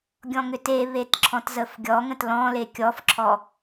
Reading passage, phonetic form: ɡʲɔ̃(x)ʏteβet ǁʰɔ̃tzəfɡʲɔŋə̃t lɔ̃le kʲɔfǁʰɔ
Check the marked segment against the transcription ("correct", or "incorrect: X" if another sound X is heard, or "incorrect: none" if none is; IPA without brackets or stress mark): incorrect: ŋ